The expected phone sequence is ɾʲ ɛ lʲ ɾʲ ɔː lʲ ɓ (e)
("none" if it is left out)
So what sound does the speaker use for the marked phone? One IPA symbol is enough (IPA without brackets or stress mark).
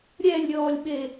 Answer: e